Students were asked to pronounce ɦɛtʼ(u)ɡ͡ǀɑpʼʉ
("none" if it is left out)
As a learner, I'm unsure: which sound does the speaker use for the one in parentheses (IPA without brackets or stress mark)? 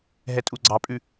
u